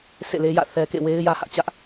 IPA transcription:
sʰ ḛ˦˨ l e˦ j ä̰˦˨ θ ɛ˦ k ḛ˦˨ w e˦ ɪ̯ j ä˦ h ä˦ ʔ t͡ɕ ä˦ ʔ

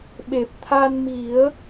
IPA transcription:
ɓ e˨˩ p̚ t̪ʰ a˧ n m i˨˩˦ ə̯

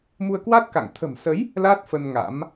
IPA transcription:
m u˧ ə̯ k w a˦˥ t̚ k a̰˧˨ ŋ t̪ʰ ə̤˨˩ m s ə˨˦ j | l a˦˥ t̚ f ə˧ n ŋ a̰˧˥ m

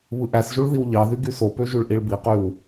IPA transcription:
β ɯ ʔ æ s ʒ u ɭ ð i w ʎ ɑ ð y ɡ y s o p ø ʒ y ɭ ʔ i ɭ b i q y w

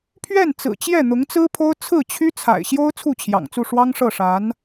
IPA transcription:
pʰ ɥ ɛ˥˩ n t͡s ɹ̩˨˩ t͡ɕ j ɛ˥˩ n̪ ʊ˧˥ ŋ t͡s ɹ̩˥ pʰ o˥ ʊ̯ t͡sʰ ɹ̩˥˩ t͡ɕʰ y˥ t͡sʰ a̰˨˩ ɪ̯ ɕ j o˥ ʊ̯ t͡sʰ u˥˩ t͡ɕʰ j ɑ̰˨˩ ŋ t͡s u˥˩ ʂ w ɑ˥ ŋ ʂ ɤ˥˩ ʂ a˧˥ n

